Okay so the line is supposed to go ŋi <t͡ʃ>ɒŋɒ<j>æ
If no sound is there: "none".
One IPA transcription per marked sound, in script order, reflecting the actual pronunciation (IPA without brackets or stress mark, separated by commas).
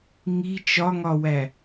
t͡ʃ, w